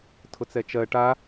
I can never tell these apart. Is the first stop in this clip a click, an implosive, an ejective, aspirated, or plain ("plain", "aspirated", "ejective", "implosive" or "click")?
aspirated